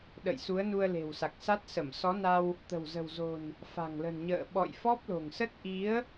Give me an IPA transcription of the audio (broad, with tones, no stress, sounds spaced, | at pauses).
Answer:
ɗ ə̰˧˨ j s u˨˦ ə̯ n u˧ ə̯ l e̤˨˩ w s a˨˩ k̚ s a˦˥ t̚ s ə˧˩ m s ɔ˨˦ n a˧ w | t̪ ə̤˨˩ w z ə̤˨˩ w z o̤˨˩ n | f a̤˨˩ ŋ l ə̤˨˩ n ɲ ə̰ː˧˨ ɓ ɔ̰˧˨ j f ɔ˦˥ p̚ l o̤˨˩ ŋ s ə˦˥ t̚ ʔ i˨˦ ə̯